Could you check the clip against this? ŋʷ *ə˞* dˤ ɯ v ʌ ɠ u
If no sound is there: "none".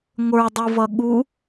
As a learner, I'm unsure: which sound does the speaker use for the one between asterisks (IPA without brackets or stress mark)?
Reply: ə˞